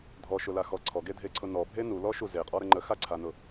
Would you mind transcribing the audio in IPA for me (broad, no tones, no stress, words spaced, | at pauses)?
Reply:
dʱɔʃʊlaxɔ ǀʰɔɡedʱeǀʰʊ nɔbʱe nulɔʃu zeqʼɔɾə ŋ͡ǃəxaǀʰanʊ